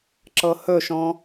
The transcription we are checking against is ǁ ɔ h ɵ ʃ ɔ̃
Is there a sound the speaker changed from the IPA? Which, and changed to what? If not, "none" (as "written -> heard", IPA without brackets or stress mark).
ɔ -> ɤ